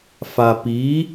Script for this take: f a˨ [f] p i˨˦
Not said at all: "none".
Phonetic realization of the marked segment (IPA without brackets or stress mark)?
none